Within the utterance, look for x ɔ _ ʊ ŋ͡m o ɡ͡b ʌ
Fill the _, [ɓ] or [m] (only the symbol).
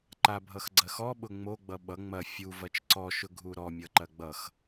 ɓ